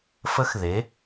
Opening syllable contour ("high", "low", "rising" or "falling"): rising